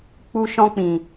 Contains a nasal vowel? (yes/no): yes